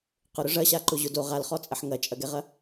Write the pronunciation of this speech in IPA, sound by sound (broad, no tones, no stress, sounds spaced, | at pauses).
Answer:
q ʊ ɾ ʊ ʐ ɐ ɕ a ǃ ʊ ʑ ʊ d o ʁ a l χ ɔ t͡sʼ ɐ ħ ŋ ɐ t͡ʃʼ ɐ ɡ ɛ ʁ ɐ